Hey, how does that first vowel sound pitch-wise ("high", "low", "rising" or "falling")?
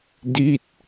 falling